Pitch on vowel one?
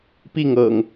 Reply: falling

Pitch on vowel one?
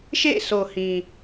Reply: falling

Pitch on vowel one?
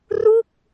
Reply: falling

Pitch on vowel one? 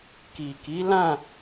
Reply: low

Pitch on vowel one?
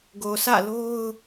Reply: low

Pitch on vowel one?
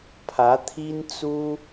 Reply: rising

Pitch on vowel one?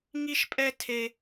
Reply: high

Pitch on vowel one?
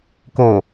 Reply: low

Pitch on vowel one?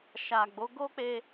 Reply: low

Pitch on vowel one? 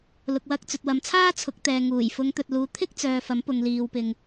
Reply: low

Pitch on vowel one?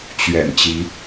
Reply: low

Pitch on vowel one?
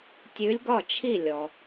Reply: rising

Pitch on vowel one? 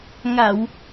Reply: low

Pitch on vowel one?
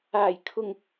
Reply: low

